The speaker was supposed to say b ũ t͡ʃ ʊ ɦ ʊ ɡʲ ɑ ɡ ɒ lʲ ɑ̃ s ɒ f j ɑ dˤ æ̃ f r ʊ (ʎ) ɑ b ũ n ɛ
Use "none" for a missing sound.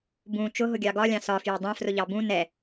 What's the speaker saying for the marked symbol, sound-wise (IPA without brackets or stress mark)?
ʎ